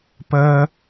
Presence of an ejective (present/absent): absent